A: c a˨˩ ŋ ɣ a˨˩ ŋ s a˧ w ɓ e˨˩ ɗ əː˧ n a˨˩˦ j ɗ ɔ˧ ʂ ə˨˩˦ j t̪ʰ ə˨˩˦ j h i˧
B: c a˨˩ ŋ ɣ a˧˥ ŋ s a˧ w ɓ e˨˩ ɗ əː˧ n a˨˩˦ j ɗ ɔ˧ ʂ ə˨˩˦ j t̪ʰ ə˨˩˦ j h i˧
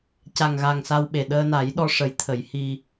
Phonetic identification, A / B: A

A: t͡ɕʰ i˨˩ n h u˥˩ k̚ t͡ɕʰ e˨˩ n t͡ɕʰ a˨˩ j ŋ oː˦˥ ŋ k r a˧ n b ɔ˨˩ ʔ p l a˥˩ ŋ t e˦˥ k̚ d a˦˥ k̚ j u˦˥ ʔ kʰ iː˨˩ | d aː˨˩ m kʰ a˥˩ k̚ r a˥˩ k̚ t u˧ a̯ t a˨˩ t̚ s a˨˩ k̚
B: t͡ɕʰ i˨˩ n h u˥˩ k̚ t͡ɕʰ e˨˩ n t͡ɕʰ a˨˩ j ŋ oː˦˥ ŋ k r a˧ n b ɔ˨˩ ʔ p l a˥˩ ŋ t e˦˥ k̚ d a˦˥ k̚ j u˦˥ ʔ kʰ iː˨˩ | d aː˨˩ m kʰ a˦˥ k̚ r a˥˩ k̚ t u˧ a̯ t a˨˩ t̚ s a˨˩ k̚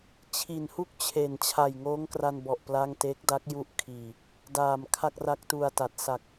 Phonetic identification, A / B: A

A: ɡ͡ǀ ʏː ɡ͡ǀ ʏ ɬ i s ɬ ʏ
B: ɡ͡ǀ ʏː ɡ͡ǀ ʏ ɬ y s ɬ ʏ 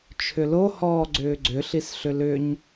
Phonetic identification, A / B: A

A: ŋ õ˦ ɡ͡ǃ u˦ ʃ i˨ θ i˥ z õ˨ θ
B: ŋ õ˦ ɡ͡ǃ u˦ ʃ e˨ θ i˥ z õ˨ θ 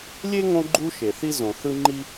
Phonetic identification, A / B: B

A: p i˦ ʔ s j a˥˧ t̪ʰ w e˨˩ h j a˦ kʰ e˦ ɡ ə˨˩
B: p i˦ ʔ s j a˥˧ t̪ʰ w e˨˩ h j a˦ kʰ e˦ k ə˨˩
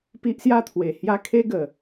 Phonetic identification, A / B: A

